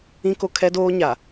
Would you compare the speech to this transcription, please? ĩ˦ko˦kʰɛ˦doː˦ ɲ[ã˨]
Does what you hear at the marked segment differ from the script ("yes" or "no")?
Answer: yes